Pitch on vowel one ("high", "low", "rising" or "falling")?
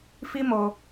high